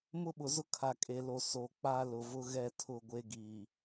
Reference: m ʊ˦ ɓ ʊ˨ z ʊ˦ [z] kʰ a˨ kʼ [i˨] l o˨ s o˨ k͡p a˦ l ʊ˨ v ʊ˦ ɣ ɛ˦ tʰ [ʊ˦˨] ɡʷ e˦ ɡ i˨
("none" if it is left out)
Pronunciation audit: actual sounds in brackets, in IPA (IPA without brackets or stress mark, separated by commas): none, e˨, ʊ˦˨